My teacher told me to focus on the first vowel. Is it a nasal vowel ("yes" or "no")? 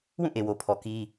yes